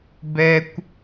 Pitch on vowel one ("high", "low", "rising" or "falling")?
high